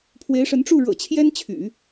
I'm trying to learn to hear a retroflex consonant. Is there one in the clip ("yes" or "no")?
yes